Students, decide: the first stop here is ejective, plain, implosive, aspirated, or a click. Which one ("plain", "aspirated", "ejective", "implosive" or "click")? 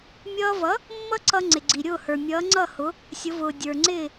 click